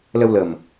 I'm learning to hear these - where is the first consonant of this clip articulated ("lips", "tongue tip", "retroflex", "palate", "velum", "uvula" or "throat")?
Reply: tongue tip